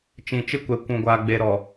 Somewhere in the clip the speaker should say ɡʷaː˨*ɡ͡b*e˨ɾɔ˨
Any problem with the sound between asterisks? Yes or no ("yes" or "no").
no